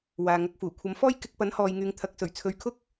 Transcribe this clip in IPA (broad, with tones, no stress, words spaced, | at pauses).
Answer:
waː˨ŋɐ˨˥k̚fuː˨˩ kʷʰɐ˨˥mfɔː˥j kɪ˨˥k̚pɐ˨˥nhɔː˨jŋyː˨ŋ t̪ʰɐ˨˥k̚sɵ˨˩ɥt͡sʰɵ˨˧ɥkʰʊ˥k̚